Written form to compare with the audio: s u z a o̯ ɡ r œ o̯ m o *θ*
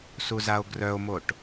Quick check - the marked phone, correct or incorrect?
incorrect